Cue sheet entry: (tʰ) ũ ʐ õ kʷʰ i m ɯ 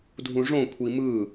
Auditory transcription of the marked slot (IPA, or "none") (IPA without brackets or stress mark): dʱ